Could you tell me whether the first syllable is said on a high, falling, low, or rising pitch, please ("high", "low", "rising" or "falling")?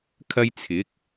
high